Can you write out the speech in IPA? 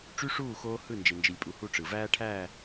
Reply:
ʈ͡ʂ y˦ ʂ uː˦˨ x oː˦ h ɯ˦˨ n d͡ʒ e˨ n d͡ʒ i˨ lʲ pʼ u˨ h u˦˨ ʈ͡ʂ ɯ˨ v æː˦ ʈʰ æː˦˨

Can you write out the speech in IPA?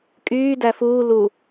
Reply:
kʼ yː d æ f uː l u

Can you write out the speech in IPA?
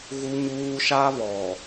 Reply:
ɣ u˦ ɲ uː˦ ʃ a˦ β ɔ˨

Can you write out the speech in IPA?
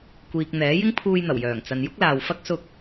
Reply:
kʷ iː˨ k̚ n̪ ɛː˨˥ j ɪ˥ ŋ pʰ uː˧ j n̪ ɐ˨˩ w j œː˨˩ ŋ t͡s ɐ˨ n j ʊ˥ k̚ l aː˨ w f ɐ˥ k̚ s ʊ˧ k̚

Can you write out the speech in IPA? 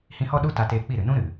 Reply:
h ĩ˧ h ɔ˦ ɗ u˦ t a˧ t eː˧ k͡p i˦˨ ɾ ɨ˨ n ũ˦ ɾ ɨ˨

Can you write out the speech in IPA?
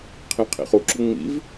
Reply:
qʰ ĩ qʰ ḭ χ u ǁ u ŋ͡m ḭ v

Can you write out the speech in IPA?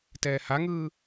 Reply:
t ɛː h a ŋ ɯː

